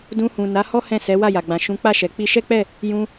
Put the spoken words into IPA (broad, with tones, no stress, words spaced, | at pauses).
dũ˧hũ˨ na˨˦hɔ˦ hɛ̃˦˨sɛ˨˦ wa˦˨ja˨ɡ͡bã˨ ʃũ˨˦k͡pa˦˨ʃɛ˨ k͡pi˧ʃɛ˦k͡pɛ˦˨ | jũ˧